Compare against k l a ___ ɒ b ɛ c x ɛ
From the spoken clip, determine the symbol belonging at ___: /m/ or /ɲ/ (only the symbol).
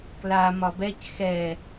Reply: m